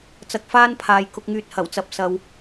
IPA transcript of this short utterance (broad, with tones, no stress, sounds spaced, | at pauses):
t͡s ɐ˧ k̚ f aː˥ n pʰ aː˨ j k ʊ˨ k̚ ŋ yː˨ t̚ h ɐ˨˩ w t͡s ɐ˨˥ p̚ s ɐ˨ w